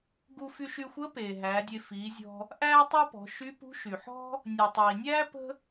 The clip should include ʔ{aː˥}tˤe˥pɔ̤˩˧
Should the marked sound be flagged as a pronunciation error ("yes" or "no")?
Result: yes